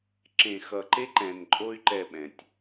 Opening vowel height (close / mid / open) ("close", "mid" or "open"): mid